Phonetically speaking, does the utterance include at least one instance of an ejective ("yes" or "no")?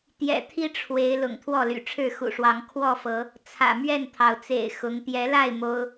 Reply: no